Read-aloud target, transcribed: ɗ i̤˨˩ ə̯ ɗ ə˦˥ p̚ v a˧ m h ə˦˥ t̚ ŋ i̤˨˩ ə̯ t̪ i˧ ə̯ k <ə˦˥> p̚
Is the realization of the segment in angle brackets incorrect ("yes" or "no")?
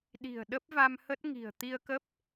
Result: no